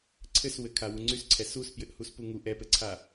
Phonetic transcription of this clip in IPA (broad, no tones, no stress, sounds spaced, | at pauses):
ǀʰ ɘ s w ɘ kʰ a w u ŋ͡ǀ y s ǀʰ ɛ s u s p j ɘ ʔ h u s p u ŋ u ʔ ɛ p ɘ ǀʰ a